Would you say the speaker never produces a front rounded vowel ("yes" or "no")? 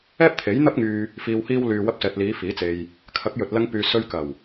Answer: no